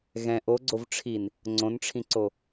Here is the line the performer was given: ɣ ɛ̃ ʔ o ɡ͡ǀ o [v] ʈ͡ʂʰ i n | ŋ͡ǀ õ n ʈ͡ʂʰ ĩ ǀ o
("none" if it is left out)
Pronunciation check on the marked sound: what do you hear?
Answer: v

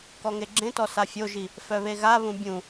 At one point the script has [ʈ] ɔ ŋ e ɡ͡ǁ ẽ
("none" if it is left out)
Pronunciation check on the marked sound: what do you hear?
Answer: k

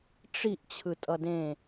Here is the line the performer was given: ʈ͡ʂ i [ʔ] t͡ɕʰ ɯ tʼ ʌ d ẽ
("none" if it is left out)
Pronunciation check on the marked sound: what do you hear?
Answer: ʔ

